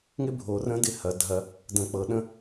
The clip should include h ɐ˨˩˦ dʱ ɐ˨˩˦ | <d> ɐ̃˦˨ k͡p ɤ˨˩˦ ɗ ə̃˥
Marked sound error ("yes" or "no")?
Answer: no